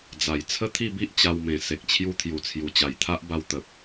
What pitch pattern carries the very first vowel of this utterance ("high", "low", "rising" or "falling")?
low